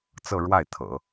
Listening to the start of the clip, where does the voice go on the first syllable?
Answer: falling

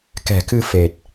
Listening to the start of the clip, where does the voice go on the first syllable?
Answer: low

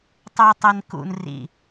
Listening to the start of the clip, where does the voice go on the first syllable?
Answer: high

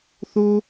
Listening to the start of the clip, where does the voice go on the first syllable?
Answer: high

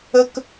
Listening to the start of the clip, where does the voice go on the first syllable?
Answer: high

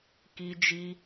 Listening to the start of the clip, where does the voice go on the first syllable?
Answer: high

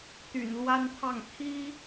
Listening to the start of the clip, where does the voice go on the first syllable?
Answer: low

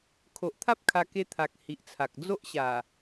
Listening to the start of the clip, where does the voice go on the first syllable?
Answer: low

